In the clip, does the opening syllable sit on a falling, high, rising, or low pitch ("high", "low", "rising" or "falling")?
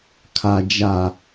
low